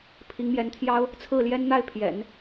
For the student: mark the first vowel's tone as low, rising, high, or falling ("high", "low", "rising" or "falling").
rising